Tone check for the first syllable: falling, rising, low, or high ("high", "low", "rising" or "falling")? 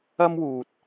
high